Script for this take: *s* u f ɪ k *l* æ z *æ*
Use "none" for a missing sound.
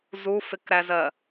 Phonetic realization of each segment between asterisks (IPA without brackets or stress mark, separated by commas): z, ɾ, ɜ